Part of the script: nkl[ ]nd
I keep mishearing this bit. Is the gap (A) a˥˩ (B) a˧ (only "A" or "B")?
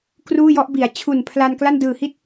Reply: A